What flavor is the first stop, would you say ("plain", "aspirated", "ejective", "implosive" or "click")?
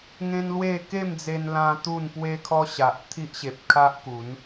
plain